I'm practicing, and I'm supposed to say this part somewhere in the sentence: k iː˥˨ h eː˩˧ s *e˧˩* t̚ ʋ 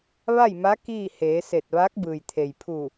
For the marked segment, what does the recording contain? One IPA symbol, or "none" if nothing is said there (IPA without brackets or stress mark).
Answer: e˧˩